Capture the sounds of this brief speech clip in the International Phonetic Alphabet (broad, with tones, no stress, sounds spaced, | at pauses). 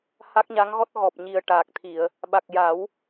h a˦˥ k̚ ɲ a˧˥ ŋ ɣ ɔ˦˥ t̚ ɣ ɔ˨˩ p̚ ɲ i˨˩ ə̯ ʈ aː˨˩ k̚ t̪ʰ i˨˩˨ ə̯ | ɓ a˨˩ k̚ j a˨˩˦ w